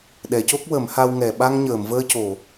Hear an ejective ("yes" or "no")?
no